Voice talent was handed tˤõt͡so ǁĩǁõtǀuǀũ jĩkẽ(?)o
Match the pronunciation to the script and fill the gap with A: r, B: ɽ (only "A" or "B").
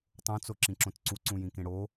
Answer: B